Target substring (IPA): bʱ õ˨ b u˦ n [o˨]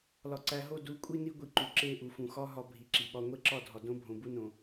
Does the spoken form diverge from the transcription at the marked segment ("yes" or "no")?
yes